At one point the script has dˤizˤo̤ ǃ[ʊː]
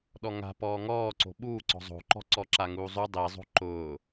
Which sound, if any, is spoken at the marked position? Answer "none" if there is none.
ʊː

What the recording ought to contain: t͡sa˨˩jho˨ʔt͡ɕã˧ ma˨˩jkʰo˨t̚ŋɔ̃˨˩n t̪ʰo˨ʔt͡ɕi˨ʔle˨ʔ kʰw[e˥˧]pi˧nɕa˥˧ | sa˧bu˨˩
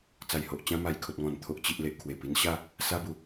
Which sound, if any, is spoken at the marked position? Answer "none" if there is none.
e˨˩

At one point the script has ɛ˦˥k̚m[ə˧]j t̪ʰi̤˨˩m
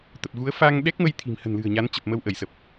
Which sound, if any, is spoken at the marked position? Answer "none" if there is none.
ə˧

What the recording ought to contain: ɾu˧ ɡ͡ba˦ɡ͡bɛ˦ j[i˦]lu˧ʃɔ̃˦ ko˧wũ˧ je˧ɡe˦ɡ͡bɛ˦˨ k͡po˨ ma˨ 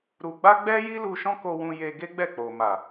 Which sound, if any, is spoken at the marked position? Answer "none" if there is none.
i˦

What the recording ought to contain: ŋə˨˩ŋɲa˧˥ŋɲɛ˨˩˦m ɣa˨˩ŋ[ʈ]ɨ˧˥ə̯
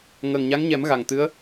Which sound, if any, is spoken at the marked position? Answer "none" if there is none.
t̪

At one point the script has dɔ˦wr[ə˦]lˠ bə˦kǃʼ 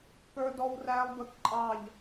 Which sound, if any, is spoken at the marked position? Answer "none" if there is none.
æ˦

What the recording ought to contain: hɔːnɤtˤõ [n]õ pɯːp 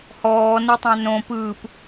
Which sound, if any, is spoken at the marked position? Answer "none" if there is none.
n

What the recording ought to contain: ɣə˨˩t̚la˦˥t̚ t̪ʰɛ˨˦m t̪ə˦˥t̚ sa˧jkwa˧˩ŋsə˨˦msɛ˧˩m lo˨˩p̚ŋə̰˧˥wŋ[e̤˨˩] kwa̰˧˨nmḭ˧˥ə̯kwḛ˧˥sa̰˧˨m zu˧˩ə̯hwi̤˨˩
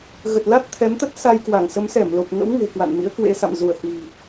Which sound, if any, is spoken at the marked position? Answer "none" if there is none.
e̤˨˩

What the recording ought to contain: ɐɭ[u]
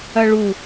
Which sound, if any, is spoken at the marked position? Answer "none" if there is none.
u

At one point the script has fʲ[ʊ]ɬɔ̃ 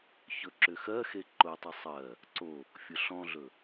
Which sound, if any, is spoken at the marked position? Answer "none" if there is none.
ʊ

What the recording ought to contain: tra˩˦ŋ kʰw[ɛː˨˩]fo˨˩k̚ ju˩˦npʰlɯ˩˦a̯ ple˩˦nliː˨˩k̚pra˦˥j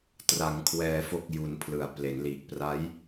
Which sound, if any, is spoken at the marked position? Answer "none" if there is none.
ɛː˩˦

